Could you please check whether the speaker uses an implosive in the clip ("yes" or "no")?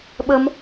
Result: yes